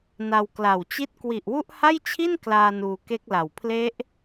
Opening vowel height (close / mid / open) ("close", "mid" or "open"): open